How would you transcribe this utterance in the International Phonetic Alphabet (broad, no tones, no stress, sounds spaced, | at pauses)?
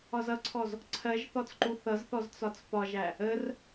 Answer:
ɒ z ʌ ǀʰ ɔ z | ǀʰ ɜ ʒ θ ɔ t͡s ǃ u θ ʌ z θ ɔ z t͡s ɒ t͡s p ɒ ʒ æ | ə r